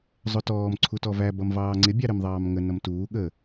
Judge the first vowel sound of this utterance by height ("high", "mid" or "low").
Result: high